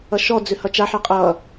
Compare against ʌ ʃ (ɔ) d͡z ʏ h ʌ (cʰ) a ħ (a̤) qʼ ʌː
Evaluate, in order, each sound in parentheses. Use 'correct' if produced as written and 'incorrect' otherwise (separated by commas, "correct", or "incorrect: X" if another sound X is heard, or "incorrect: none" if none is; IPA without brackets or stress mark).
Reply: correct, incorrect: t͡ʃ, incorrect: a